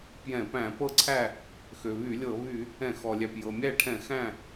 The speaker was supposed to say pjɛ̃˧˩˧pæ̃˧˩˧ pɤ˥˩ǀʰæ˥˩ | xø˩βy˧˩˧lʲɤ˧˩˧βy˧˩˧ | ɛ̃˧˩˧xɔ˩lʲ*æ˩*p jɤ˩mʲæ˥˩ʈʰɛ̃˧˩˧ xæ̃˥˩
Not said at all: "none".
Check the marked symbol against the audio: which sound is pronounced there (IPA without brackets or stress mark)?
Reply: æ˩